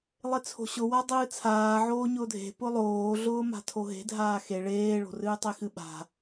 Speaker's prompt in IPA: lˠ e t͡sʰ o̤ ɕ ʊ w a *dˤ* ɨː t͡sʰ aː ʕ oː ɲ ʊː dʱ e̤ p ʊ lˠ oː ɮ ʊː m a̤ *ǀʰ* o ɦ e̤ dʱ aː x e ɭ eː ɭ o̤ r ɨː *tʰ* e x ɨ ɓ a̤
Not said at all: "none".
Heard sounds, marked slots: dˤ, tʰ, tˤ

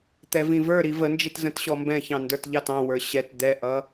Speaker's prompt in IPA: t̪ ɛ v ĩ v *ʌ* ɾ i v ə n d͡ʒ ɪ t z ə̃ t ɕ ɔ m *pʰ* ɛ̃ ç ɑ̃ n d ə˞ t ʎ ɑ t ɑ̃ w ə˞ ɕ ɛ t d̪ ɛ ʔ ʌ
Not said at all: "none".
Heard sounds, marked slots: ə˞, b

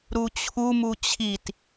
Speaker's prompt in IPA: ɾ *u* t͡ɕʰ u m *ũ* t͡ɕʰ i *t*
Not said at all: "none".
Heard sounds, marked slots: u, u, t

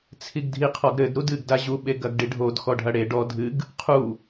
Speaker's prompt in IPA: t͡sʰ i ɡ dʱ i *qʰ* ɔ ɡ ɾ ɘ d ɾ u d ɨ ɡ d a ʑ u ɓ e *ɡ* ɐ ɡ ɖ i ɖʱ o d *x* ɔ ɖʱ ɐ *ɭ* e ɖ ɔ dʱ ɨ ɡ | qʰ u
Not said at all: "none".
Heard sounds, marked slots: qʰ, ɡ, x, ɽ

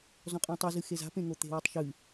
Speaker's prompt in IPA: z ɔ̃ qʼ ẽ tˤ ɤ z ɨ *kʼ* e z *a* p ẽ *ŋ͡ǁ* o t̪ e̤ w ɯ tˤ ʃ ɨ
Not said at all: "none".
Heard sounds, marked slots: x, a̤, ŋ

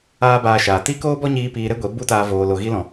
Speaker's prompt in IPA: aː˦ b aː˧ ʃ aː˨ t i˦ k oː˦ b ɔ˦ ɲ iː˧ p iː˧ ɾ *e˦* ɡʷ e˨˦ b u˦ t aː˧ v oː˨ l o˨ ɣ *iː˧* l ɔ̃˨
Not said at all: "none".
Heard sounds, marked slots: e˦, i˧

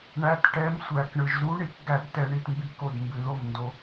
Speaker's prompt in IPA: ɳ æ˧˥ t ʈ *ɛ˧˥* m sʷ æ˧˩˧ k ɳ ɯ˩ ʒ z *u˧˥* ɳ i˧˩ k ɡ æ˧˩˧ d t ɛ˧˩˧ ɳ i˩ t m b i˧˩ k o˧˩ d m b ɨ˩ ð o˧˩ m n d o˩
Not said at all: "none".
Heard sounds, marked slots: ɛ˧˥, u˧˥

